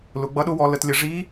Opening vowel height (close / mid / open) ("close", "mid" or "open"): close